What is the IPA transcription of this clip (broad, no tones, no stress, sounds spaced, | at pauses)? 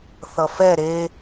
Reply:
θ ʌ f ɛ ɾ e